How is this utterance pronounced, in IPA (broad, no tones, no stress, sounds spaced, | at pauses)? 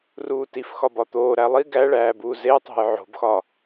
r uː t i f x ɒ b ɒ t̪ oː ɾ æ lˠ i ɡ æ ɭ æː b uː z e tˤ o̤ j ʕ o̤ b x ɒ